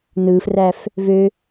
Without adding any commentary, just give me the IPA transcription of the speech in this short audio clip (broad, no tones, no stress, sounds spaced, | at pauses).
n ɯ f r æ f | v ø